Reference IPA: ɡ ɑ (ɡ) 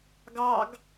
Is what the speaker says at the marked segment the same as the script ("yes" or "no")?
yes